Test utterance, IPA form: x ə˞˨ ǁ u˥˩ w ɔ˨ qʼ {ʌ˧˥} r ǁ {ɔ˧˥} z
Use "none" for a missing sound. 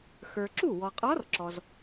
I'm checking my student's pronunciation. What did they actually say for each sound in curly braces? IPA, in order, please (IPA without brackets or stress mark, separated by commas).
ɔ˧˥, ɔ˨